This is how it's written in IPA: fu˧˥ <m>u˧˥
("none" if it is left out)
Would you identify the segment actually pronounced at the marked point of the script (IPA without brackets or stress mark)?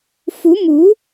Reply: m